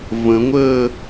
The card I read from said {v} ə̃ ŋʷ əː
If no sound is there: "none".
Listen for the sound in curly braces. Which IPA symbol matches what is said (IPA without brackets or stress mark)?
v